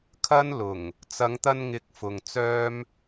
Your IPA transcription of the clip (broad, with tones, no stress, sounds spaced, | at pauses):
kʰ ɐ˥ n l ʊ˨˩ ŋ | t͡s ɐ˨˧ ŋ t̪ ɐ˧ n ŋ ɪ˨˥ k̚ f ʊ˨ ŋ t͡s œː˥ m